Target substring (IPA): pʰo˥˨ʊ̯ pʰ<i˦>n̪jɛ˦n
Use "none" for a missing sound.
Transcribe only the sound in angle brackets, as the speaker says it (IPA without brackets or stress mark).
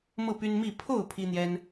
i˦